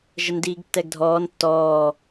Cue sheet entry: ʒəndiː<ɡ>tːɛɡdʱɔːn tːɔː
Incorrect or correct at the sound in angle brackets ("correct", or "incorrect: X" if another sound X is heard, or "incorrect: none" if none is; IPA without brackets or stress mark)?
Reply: correct